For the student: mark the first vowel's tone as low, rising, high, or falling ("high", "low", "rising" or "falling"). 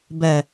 low